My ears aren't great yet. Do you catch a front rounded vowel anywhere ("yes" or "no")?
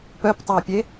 yes